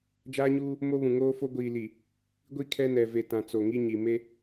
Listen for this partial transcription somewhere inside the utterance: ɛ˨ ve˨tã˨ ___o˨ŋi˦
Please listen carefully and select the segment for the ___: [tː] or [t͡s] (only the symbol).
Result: t͡s